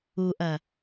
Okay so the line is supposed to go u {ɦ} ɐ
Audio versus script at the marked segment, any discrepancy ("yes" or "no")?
yes